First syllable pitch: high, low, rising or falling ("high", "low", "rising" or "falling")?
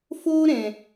high